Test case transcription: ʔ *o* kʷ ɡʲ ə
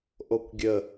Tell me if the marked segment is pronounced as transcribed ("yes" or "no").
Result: yes